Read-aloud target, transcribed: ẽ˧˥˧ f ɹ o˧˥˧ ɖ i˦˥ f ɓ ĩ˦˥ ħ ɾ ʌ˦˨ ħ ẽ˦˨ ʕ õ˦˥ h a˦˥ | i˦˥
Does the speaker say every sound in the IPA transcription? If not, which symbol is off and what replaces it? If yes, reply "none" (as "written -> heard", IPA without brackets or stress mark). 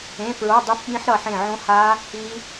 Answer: ɖ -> dˤ